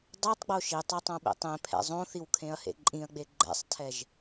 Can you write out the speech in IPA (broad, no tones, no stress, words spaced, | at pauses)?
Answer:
dˤɜtˤɡ͡bo ʃitˤetˤõɓḛ tˤẽpʰɛ̰ zˤõθiwkʰẽɐ̯hḛ ǃʼĩɐ̯ɡ͡be ɡ͡ǃɛ̰sˤtʰɛʒ